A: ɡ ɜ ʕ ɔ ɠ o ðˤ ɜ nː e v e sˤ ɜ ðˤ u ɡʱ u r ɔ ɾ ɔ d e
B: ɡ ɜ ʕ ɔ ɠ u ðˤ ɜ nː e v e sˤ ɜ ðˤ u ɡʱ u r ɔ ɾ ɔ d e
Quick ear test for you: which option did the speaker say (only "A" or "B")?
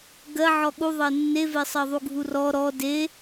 B